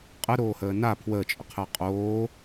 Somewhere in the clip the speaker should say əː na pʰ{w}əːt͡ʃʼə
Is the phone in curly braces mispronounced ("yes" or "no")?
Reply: no